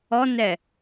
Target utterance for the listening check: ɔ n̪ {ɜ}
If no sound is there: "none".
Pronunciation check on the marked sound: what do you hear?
ɛ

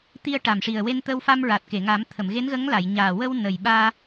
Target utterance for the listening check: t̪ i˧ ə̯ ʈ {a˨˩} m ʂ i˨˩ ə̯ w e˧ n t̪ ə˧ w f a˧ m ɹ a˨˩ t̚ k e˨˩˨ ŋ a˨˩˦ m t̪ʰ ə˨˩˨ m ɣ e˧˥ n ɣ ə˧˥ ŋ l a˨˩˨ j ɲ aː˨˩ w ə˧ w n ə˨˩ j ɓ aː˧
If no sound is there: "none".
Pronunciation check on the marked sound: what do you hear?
a˨˩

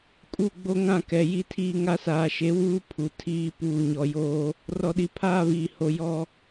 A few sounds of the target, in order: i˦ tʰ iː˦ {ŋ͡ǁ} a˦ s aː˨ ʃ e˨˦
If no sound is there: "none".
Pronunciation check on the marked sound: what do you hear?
ŋ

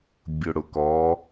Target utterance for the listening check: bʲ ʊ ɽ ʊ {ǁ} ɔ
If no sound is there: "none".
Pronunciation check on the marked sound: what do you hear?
k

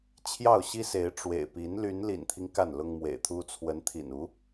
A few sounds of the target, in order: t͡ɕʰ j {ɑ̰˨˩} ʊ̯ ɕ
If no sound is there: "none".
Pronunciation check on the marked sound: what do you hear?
ɑ˥˩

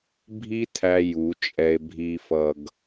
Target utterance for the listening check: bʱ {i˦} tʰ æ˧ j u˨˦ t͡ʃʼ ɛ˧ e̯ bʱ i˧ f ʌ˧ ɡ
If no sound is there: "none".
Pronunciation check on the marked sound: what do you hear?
i˦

